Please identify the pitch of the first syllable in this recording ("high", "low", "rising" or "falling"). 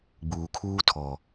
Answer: low